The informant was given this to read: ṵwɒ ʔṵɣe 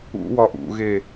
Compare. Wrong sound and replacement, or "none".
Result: none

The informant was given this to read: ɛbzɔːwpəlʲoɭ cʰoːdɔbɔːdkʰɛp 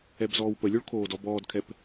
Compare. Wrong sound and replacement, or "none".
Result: cʰ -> kʰ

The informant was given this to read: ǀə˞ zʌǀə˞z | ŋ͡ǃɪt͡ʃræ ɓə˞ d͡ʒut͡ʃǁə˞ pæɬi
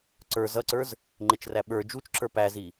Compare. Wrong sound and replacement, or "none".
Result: ɬ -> z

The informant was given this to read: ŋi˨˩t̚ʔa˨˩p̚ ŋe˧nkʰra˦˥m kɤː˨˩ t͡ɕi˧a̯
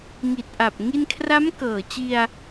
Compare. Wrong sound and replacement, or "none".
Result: e˧ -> i˧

